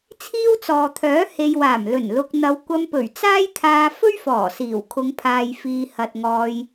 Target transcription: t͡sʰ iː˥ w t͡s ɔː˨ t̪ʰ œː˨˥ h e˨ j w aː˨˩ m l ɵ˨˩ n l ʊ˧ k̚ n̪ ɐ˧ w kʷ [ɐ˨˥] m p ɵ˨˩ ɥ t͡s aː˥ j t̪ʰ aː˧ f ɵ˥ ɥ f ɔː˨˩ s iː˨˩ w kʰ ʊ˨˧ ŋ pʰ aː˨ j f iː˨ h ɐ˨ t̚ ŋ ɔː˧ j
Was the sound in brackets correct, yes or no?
no